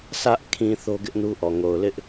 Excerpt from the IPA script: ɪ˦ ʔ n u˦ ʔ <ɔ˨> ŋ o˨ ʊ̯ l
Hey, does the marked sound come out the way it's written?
yes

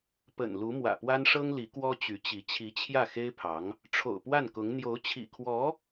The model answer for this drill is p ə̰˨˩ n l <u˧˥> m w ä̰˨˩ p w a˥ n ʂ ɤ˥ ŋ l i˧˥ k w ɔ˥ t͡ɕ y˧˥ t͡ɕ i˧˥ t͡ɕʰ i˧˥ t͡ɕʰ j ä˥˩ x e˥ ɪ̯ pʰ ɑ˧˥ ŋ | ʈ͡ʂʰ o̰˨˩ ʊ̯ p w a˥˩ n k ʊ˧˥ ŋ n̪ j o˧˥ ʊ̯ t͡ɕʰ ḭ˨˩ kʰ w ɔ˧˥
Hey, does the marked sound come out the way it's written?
yes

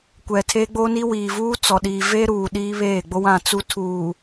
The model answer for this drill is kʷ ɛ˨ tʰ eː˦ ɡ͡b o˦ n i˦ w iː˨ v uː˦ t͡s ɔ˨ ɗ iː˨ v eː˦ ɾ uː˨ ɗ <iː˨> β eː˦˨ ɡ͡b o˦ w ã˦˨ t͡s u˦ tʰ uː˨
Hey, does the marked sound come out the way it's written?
no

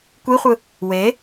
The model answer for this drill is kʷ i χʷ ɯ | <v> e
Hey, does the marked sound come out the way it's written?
no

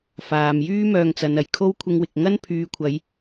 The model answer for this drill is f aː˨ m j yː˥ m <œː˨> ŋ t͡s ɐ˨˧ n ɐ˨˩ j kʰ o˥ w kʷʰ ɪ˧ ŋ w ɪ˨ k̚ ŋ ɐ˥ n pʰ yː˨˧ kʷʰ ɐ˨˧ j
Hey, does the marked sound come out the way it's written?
no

